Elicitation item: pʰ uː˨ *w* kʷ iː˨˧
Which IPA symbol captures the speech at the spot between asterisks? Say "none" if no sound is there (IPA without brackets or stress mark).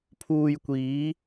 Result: j